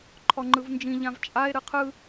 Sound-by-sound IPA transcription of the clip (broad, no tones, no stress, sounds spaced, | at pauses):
ǃʰ ɔ ŋ͡ǃ ɯ v n d͡ʒ ĩ ʎ ã v t͡ʃʼ a e̯ ɾ ɯ qʰ ɯ